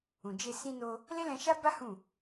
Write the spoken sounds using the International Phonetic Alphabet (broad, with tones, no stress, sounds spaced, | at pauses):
ũ˨ d͡ʒ e˧ s ĩ˧ n o˧ | l e˦ l ɛ̃˧ ʃ a˦ b a˦ h ũ˦˨